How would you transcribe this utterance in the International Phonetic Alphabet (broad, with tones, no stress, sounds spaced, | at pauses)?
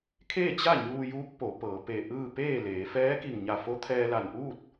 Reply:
kʰ eː˥˨ t͡ɕ a˥˨ ɲ uː˧ j uː˧˥ k̚ p o˩˧ p ɤː˩˧ p e˧˩ ʔ ɯː˥˨ p eː˥˨ l eː˩˧ f ɛː˧˥ k i˧˩ ŋ ɲ a˧˩ f o˧˥ t̪ʰ ɛː˧ l a˧˩ n ʔ uː˥˨ t̚